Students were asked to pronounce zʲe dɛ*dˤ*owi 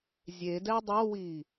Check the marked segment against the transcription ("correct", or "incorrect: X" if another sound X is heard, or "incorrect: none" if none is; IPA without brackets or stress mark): correct